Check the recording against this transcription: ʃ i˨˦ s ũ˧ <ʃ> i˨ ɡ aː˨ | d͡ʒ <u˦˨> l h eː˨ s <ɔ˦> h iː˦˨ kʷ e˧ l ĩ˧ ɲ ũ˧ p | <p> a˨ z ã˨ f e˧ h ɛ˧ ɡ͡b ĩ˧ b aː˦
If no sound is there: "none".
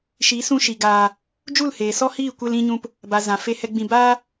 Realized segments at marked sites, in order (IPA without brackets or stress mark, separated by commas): ʃ, u˦˨, ɔ˦, b